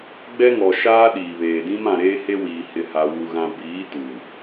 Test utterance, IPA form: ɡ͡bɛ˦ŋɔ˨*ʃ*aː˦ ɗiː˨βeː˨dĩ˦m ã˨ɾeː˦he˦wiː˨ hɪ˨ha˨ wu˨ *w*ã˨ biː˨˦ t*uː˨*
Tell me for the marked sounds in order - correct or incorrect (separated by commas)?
correct, incorrect, correct